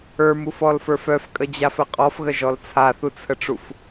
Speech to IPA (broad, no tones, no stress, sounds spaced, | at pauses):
ə˞ m u f ɔ l f ə˞ f œ f kʼ ə d͡ʑ a f ə qʼ ɔ f ɣ ə ʒ ɔ l t͡sʰ a θ u t͡sʰ ə ʈ͡ʂ u f